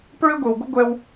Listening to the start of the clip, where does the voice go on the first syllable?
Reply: high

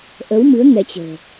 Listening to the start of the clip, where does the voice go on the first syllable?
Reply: rising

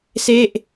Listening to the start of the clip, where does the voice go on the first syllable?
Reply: falling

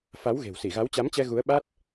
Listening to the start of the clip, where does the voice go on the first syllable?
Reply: rising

